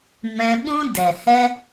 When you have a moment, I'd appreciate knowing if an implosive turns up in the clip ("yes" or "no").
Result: yes